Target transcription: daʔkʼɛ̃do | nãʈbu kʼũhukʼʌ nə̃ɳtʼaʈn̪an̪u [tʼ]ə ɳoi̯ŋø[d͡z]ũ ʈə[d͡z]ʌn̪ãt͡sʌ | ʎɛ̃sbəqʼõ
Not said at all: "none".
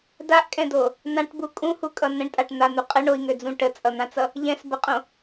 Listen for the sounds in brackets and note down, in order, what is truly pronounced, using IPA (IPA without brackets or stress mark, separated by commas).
qʼ, d͡z, t͡sʼ